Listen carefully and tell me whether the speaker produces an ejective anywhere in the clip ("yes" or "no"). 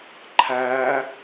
no